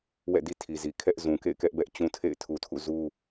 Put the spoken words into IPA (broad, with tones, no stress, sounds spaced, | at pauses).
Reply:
w ɛ̰˦˨ d i˦ tʰ i˨ z i˨ kʰ ɛ˦ ʔ z ũ˨ k ḛ˦˨ ɪ̯ k ɛ˦ ʔ b ɛ˦ ʔ t͡ɕ ũ˦ tʰ ḛ˦˨ ɪ̯ tʰ u˨ tʰ ṵ˦˨ z u˦